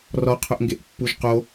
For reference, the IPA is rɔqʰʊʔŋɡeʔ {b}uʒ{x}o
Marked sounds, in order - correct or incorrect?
incorrect: pː, incorrect: q

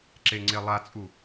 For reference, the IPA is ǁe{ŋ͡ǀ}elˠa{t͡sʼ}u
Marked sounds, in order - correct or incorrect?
correct, correct

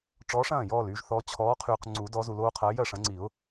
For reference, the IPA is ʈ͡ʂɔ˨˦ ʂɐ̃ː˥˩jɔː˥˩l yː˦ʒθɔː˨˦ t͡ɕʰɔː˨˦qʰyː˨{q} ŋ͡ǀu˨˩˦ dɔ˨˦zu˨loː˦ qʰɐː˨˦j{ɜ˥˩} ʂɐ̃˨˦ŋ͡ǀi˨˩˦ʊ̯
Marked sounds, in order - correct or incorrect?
correct, correct

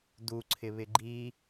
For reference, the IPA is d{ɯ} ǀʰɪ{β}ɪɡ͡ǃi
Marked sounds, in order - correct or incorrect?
incorrect: u, correct

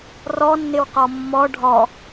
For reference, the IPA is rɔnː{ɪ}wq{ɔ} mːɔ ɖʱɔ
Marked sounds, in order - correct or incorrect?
correct, correct

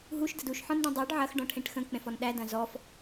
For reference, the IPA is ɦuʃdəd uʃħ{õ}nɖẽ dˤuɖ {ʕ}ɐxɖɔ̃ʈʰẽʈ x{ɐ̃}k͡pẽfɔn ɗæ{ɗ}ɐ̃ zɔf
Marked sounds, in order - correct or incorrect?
incorrect: ɔ̃, correct, incorrect: ə̃, incorrect: d

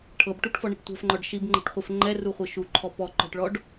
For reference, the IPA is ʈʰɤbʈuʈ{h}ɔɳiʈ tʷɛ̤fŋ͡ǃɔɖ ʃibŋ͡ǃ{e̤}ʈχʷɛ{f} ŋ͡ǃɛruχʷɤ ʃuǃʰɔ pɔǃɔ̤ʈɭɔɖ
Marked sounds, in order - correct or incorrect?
incorrect: f, incorrect: ɛ̤, correct

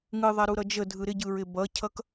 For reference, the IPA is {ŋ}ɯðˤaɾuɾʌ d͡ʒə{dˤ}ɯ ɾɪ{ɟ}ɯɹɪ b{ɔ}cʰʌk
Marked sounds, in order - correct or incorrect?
correct, incorrect: dʱ, correct, incorrect: ʌ

